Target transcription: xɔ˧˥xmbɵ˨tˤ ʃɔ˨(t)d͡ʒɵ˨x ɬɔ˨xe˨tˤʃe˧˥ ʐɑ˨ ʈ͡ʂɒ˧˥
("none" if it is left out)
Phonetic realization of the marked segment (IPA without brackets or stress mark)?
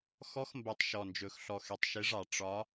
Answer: n